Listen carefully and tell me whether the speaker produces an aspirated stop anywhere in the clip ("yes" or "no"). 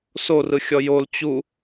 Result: no